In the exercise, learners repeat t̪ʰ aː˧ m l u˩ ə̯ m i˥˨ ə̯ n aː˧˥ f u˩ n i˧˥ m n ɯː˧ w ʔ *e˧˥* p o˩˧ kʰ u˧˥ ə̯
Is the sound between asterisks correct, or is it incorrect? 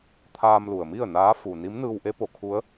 correct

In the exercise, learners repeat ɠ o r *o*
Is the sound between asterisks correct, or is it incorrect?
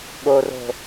incorrect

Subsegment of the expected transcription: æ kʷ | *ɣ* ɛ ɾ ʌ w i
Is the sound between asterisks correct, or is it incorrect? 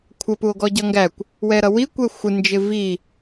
incorrect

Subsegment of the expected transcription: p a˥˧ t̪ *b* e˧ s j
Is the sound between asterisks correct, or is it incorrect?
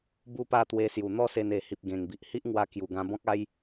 incorrect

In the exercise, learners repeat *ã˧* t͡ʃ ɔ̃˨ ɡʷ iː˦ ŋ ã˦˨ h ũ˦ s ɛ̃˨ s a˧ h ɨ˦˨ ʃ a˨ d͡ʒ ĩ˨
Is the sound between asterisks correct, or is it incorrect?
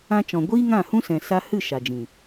correct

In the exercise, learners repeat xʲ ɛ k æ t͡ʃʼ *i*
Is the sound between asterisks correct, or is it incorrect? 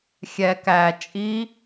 correct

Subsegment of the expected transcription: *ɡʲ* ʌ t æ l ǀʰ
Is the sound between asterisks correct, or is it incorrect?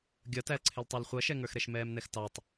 correct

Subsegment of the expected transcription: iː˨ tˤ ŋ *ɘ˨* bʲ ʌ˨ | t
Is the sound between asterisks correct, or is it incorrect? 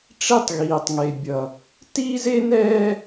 incorrect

